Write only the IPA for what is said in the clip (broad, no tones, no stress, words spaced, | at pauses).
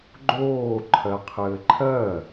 ɡ͡ǃoː ǃʰɜqʰɘːǃʰɜ